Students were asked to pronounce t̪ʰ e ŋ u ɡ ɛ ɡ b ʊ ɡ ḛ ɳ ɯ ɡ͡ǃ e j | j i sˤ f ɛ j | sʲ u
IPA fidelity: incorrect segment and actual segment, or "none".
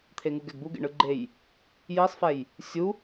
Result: ʊ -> u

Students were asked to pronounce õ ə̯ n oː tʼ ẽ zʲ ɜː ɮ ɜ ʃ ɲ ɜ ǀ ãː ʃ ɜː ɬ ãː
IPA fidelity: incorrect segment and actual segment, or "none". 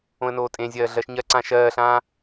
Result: none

